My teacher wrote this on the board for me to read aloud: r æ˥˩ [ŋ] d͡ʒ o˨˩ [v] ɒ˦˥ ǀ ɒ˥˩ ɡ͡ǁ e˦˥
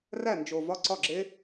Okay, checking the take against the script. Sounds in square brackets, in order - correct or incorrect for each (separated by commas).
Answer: incorrect, correct